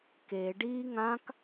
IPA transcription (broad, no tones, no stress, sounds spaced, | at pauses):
k e ɖ iː ŋ ã k